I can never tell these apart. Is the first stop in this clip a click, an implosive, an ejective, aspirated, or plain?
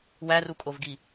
ejective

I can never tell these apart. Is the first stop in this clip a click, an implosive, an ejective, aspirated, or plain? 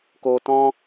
plain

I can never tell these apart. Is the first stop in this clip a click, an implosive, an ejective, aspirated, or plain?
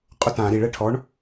ejective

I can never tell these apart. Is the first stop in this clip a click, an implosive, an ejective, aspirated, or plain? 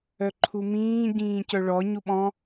click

